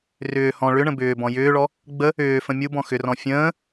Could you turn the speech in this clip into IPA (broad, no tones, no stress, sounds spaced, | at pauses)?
r ʏː h ɔ̃ ɭ ʏ ɳ ə̃ b ʏː b ɔ̃ j ʏː ɭ ɔ | ɡ͡b ə | ʏː f ə̃ mʲ u b ɔ̃ x ʏ r ɔ̃ fʲ ə̃ː